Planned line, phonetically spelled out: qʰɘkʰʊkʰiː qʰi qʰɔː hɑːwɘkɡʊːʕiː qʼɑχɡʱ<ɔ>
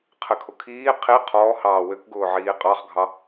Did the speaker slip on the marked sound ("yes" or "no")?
yes